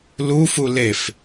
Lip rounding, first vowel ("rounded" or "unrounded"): rounded